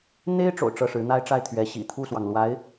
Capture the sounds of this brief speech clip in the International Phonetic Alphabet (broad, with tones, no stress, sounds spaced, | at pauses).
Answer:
n̪ e˥ ɪ̯ ʈ͡ʂ o̰˨˩ ʊ̯ ʈ͡ʂ ɤ˥˩ ʂ ɻ̩˧˥ n̪ a˥ ɪ̯ ʈ͡ʂ a˥˩ ɪ̯ t̪ʰ ɥ ɛ˧˥ ɕ ḭ˨˩ t̪ʰ u˥˩ s w ɑ˩ ŋ l w a˧˥ ɪ̯